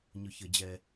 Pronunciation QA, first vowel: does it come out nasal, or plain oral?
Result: oral